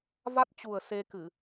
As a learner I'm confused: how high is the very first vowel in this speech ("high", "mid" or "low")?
low